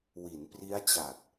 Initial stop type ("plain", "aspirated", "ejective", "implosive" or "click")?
plain